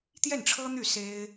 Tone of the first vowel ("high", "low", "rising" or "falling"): falling